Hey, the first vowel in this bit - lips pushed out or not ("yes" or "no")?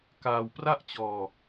no